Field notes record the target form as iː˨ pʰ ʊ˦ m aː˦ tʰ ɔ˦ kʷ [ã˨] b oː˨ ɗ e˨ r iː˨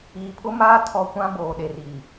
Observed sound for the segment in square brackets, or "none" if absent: ã˦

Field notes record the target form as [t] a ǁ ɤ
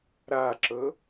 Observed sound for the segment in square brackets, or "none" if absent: ɾ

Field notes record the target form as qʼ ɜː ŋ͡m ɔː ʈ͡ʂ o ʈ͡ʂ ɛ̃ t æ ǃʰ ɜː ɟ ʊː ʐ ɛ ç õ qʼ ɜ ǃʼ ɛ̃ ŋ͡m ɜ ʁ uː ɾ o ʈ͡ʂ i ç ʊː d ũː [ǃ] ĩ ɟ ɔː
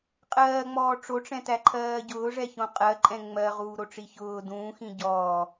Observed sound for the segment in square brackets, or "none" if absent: x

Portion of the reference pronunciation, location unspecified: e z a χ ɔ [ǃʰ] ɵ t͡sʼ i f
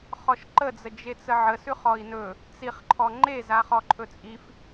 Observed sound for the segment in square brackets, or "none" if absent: ǃʰ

